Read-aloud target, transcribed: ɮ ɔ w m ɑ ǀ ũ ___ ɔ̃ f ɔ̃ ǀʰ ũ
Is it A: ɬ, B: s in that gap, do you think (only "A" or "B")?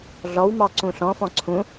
A